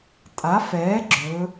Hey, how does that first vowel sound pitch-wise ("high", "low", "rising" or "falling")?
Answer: rising